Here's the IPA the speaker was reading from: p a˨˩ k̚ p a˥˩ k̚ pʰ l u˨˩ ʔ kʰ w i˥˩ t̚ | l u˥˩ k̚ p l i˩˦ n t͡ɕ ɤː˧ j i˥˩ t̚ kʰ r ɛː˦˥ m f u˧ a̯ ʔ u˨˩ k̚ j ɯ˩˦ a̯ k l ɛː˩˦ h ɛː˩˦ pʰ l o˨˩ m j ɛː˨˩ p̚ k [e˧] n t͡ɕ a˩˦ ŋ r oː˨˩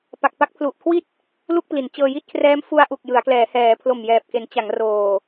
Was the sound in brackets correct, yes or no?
no